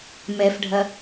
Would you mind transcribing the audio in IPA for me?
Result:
m ɛ f ɖʱ ɐ

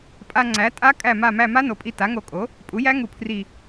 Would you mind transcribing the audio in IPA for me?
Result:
pʼ a˧ ŋ͡ǀ æ˩˥ tʼ a˦˥ kʼ æ˧˩ m a˧˩ m æ˧˩ m a˦˥ n o˩˥ pʼ i˧ t a˩˥ ŋ o˧˩ kʼ o˩˥ | pʼ u˩˥ j æ˦˥ ŋ u˧˩ pʰ r i˧˩

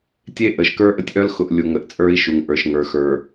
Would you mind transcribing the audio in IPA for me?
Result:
tʲ e˦ ʔ ə˨ ʃ k ə˞˦ ʔ ə˦ tʲ ʔ œ˦ l x ʊ˨ ʔ lʲ u˨ ŋ ə˨ ʔ t͡sʼ ə˞˦ i̯ ʃ u˨ ŋ ʔ ə˞˨ ʃ ŋ ə˞˨ x ə˞˨

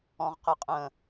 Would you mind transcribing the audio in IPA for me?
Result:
ɔ̃ ʁ q ɪ qʼ ə̃

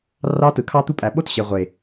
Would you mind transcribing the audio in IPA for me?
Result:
r ɑ˦ t ɯ˨˦ kʰ ɑ˦ t̪ u˦ pʼ æ˨ ɓ o˦ t ɕ e˨ ʁʷ e˨

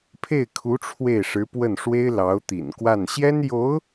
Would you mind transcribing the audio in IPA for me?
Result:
pʰ e˥˩ ɪ̯ kʰ u˧˥ ʈ͡ʂʰ w e˥˩ ɪ̯ ʂ ɻ̩˧˥ p w ə˥˩ n ʂ w e˥ ɪ̯ l ɑ˧˥ ʊ̯ t̪ ḭ˨˩ n k w a˥˩ n ɕ j ɛ˥ n j o˧˥ ʊ̯

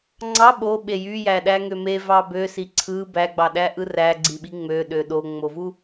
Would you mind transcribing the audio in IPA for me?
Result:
ŋ͡ǀ ɑ ɓ o ɓ e j y j æ ɗ æ ŋ ø m e v ɑ b ø s i ǀʰ ɯ b æ ɡ͡b ɑ ɗ æ ʔ ɯ r æ ɡ͡ǀ i ɓ i ŋ͡m ø ɗ ø ɗ o ŋ͡m o v u

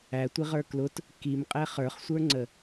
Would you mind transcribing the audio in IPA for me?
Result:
æ tʷ i ʁ ə˞ k l ʊ t | k i m qʼ ɛ χ ə˞ χ sʷ ə˞ ŋ͡ǀ ə

